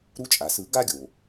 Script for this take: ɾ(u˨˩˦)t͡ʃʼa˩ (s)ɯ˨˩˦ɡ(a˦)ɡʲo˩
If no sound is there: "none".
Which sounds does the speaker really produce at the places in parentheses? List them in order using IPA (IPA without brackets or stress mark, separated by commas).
u˦, s, a˦